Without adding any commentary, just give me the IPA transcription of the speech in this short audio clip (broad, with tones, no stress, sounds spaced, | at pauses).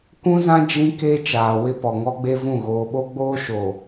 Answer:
kʷ ũ˦ z ã˦ d͡ʒ ĩ˦ k e˦ t͡ʃ aː˨ w ɪ˦ p ɔ˨ ŋ ɔ˦ ɡ͡b e˦ v ũ˦˨ ɣ oː˨ ɓ o˦ ɡ͡b oː˦ ʃ o˨